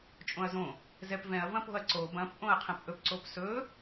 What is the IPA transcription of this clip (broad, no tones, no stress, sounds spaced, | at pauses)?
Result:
t͡ʃʼ õ ɐ̯ z õ | z ɛ p v ɛ̃ ɐ̯ v ɐ̃ p o̤ ɐ̯ ǀ o b ɐ̃ p ʔ õ ɐ̯ qʰ ɐ̃ p ʔ ɵ p ǀ o p s ɵ